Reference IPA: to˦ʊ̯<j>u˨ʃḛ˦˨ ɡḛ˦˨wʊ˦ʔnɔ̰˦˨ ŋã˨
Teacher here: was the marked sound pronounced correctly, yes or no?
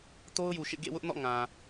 yes